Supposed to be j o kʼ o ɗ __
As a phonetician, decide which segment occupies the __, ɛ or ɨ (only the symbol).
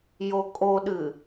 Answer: ɨ